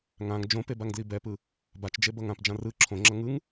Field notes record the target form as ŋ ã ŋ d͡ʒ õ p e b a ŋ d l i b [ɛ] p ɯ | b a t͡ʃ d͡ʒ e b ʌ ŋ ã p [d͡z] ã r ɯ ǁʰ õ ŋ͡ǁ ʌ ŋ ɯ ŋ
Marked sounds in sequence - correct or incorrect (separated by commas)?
correct, incorrect